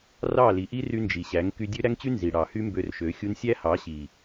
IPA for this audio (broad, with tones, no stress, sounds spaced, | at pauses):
r ɑ˦˨ l i˨ ʔ i˦ r y˧ n d͡ʒ i˨ ɕ æ˨˦ ŋ k y˧ dʲ ø˦ ɾ æ˦ ŋ t͡ɕ y˦ n z i˨ ɽ ɑ˨ h y˦ m b ø˧ r ʃ ø˨˦ xʲ u˧ n sʲ æ˦ h ɑ˨˦ ɕ i˨